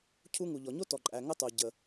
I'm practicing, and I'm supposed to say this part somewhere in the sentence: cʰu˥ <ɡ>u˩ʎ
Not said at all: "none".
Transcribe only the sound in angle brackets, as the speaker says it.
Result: ŋ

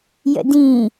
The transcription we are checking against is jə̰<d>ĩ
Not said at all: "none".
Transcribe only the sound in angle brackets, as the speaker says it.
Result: d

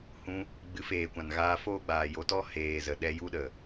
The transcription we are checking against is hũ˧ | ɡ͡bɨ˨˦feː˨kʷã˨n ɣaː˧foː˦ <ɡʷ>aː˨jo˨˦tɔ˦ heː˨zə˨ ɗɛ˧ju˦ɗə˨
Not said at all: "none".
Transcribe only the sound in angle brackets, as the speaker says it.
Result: ɡ͡b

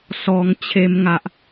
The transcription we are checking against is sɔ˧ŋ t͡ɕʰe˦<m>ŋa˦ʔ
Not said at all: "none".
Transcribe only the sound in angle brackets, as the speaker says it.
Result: m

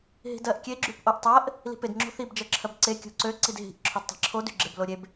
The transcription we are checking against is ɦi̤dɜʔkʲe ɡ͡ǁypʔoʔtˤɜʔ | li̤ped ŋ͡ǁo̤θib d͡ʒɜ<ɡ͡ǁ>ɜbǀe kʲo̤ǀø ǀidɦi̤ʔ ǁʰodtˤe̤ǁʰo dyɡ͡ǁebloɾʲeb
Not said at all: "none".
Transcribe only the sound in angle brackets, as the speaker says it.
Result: ǁʰ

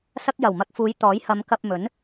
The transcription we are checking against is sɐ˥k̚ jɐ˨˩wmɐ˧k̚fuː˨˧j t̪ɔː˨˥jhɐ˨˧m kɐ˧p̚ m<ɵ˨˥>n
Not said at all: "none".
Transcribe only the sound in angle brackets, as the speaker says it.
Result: ɵ˨˥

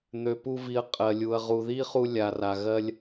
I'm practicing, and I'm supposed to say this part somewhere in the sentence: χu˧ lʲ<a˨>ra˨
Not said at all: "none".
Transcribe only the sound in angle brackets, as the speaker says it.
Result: a˨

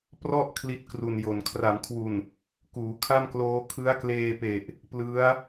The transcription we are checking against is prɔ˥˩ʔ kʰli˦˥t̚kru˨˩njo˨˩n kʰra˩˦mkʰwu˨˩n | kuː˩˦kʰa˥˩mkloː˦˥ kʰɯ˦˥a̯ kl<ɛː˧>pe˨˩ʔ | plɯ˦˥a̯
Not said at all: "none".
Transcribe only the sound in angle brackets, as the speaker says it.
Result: eː˧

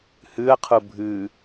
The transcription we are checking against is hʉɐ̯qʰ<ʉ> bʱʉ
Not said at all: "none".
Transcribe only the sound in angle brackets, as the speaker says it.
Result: u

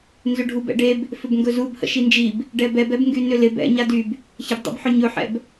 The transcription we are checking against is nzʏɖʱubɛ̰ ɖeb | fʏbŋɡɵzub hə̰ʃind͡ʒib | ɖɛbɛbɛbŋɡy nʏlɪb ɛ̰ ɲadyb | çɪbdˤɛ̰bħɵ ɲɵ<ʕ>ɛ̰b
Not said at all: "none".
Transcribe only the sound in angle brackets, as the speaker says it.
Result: ħ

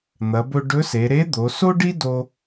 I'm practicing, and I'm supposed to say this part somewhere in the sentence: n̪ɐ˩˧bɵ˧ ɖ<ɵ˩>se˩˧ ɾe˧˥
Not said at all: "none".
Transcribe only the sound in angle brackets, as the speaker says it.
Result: ɵ˧˥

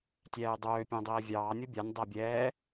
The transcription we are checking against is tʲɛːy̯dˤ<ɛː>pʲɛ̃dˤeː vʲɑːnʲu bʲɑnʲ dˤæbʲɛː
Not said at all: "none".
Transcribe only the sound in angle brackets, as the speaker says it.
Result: øː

